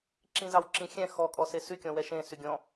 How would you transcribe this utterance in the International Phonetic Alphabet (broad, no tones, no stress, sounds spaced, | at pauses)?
ǁ ĩ z ɑ w ǁ ĩ xʲ ɛ̃ x ɔ kʼ ɔ s e s y kʲ ɔ̃ w ɛ ʃ ẽ s y ɡʲ ɔ̃